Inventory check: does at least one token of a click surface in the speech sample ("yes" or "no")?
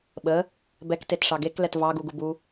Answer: no